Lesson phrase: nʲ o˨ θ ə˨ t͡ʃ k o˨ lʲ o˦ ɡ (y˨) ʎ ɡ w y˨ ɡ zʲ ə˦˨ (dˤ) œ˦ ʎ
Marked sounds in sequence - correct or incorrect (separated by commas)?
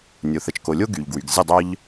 correct, correct